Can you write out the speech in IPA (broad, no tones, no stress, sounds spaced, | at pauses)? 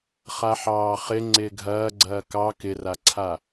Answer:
χ a ħ ɑː χ ɪ ŋ͡ǀ ɪː ɡʱ ɐː ɡ͡ǀ ɐː k ɑ k ɪ r a ǀʰ a